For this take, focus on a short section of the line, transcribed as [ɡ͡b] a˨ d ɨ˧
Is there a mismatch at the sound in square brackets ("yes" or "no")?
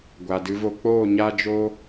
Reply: yes